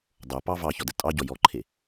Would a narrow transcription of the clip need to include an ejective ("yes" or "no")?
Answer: yes